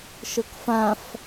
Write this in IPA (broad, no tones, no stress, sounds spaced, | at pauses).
ʃ ɤ k f ã f